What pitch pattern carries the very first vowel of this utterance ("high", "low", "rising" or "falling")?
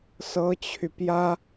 high